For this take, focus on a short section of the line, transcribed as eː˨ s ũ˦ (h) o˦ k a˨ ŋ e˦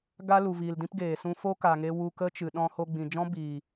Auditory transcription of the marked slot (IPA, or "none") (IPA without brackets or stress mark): f